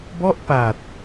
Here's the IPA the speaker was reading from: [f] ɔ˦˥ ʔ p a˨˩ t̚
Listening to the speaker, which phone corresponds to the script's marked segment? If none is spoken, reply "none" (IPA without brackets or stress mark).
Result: b